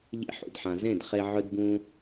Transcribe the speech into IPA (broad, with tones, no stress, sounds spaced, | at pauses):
ʎ ḛ˧ ħ ṵ˨ d ħ ã˨ z ẽ˦˨ d χ e˧ ʕ ɵ˦ d b ũ˦